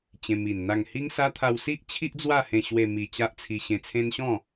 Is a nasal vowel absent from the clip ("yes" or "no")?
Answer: no